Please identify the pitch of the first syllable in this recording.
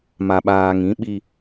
low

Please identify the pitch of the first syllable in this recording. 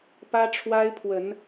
high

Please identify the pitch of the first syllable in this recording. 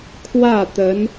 falling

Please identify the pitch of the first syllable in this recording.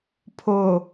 low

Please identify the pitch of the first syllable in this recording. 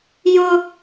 high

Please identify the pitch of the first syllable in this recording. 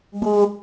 high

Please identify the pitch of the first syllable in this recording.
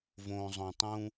low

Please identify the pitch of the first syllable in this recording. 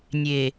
low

